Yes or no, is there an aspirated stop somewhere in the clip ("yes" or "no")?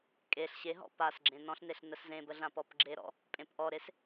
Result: no